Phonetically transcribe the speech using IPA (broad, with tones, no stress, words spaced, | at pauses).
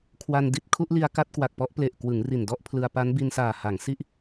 kʰwa˧n di˦˥t̚kʰu˦˥ʔli˧a̯ ka˥˩t̚kwa˨˩k̚pɔ˦˥ʔ ple˨˩ʔkwɯ˩˦ŋ ri˨˩ndɔ˥˩ʔpʰlɯ˧a̯ pa˦˥nbi˧nsaː˨˩ ha˩˦ŋsi˥˩ʔ